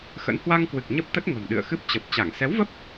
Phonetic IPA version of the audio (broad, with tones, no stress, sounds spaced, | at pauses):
x ə̰˧˥ n h w a˧ ŋ k w ɨ˨˩ k̚ ɲ ə˦˥ p̚ t̪ ə˦˥ t̚ ŋ ə̤˨˩ m ɗ ɨ̰˧˨ ə̯ x ɨ˦˥ p̚ t͡ɕ ə˨˩ p̚ t͡ɕ a˧˩ ŋ s ɛ˨˦ w v ə˦˥ p̚